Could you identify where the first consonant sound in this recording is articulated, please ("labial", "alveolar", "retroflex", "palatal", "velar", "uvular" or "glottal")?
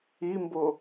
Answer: labial